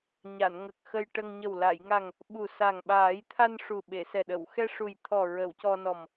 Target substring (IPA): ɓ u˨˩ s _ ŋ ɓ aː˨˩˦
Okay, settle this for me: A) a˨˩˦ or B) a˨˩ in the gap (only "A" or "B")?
B